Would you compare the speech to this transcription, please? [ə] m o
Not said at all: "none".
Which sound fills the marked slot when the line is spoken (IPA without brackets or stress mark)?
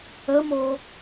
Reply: ə